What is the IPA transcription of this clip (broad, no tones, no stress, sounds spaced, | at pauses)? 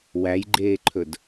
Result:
w æ j ɡ͡ǃ eː ǃʰ ɵ d